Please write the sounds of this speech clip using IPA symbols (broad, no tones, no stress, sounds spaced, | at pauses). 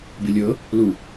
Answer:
b i lʲ ɤ | l u